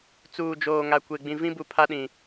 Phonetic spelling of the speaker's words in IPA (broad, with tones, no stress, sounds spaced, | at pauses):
t͡s uː˨ d͡ʒ oː˨ ŋ a˨ kʷ e˨ ɡ͡b ĩ˨ v ĩ˦ b u˨ pʰ a˦ ɗ ĩ˨